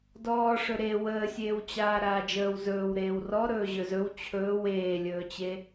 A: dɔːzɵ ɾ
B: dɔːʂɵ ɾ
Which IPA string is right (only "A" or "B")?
B